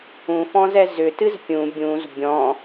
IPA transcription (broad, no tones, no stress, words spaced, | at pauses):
ũfɔ̃zɛ zʏtɨz pʲũ bʲũz bʲɔ̃